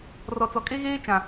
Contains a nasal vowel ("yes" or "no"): yes